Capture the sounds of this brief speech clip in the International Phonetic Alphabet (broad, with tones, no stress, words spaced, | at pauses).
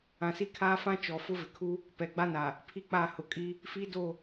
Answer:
ã˨si˦kʰaː˦ fã˦t͡ʃɔ˨ fʊ˦vɪ˨kʰu˦ | pɛ˨ɡ͡ba˦na˨ | pʰi˦k͡pa˦˨ hʊ˨kʼi˦ | fi˦ do˦˨